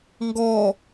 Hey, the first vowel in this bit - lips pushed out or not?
yes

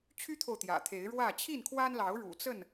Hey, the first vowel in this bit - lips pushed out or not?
yes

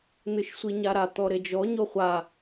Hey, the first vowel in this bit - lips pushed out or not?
no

